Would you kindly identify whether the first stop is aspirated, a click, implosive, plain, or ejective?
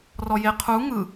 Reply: aspirated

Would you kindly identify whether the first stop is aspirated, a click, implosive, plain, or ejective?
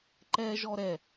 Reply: click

